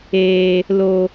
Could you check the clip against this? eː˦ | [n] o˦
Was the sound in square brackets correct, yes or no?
no